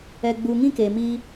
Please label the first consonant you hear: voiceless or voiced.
voiced